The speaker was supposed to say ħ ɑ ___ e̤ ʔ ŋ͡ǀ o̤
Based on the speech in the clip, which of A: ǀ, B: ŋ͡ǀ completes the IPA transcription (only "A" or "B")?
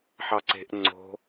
A